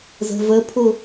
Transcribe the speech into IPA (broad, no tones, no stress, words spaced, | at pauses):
zə̤vəpʰʊ